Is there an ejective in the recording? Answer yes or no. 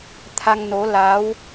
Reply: no